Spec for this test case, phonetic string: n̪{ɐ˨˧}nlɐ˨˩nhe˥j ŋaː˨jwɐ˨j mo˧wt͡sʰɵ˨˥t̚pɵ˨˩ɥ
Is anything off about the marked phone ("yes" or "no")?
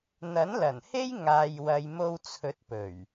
yes